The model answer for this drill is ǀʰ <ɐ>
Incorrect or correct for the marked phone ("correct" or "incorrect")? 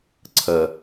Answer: correct